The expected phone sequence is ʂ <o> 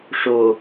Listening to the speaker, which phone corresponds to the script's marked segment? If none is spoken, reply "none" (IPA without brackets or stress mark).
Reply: o